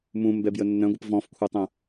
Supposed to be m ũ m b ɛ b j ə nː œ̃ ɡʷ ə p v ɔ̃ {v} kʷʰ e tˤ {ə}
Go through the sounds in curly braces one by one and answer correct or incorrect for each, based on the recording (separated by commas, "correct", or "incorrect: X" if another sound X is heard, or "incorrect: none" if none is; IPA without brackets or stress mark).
incorrect: f, incorrect: ə̃